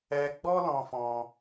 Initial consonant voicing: voiced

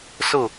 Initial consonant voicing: voiceless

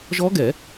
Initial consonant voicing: voiced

